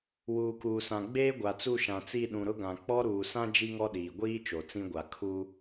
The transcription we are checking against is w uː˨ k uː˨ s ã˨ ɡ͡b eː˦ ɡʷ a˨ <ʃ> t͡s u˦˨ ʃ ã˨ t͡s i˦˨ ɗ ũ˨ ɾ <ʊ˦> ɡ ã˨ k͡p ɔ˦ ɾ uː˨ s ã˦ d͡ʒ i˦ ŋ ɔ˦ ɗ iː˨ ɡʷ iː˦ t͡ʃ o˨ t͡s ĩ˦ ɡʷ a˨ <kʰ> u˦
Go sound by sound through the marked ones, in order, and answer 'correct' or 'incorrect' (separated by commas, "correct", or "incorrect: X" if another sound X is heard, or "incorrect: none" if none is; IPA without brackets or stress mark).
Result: incorrect: none, correct, correct